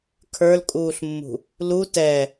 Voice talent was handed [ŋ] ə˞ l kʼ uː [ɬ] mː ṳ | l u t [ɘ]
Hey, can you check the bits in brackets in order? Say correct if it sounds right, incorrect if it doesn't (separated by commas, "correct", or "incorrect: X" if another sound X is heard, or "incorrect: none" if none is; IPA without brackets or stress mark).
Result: incorrect: kʰ, correct, incorrect: ɛ